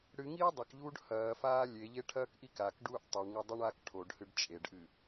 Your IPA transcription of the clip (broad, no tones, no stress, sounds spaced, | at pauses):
ɽ ɨ ŋ iː dˤ ɐ k ʎ uː ɖ h ɐː f aː lʲ e ʎ e ʈʰ ɐː k ʔ i k a k ɖ uː ʔ tˤ ʉ ɳ ŋ ʉ dˤ ʉ ɳ aː k ʈʰ o ɖ h ɨ ɖ t͡ʃʼ e ɖ ʔ ɨ